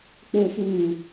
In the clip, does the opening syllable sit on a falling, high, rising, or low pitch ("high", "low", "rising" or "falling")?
low